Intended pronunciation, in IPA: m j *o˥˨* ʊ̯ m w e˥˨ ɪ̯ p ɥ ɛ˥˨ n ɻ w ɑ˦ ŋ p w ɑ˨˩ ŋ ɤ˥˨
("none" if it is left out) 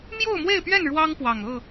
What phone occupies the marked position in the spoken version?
o˥˨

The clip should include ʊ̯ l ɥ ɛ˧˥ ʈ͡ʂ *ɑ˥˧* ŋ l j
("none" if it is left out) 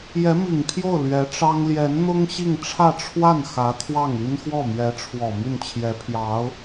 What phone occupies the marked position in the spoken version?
ɑ˥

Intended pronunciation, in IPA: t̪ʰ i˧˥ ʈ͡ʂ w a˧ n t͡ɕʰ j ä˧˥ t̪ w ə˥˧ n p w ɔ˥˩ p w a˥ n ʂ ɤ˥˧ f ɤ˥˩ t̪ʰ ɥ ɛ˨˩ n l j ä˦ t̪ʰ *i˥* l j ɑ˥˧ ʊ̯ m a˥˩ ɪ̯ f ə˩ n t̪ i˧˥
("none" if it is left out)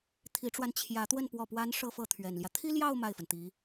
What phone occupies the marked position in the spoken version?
i˥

